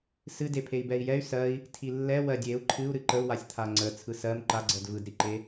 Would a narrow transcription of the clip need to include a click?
yes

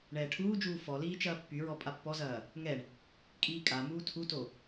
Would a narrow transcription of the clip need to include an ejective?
yes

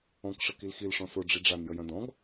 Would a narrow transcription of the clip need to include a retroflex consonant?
yes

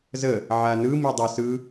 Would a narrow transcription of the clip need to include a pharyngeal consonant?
yes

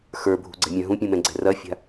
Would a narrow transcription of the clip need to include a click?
yes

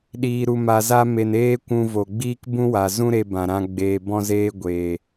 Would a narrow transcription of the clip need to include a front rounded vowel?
no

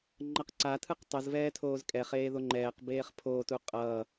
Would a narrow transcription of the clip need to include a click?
yes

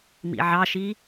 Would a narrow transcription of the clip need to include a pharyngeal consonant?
yes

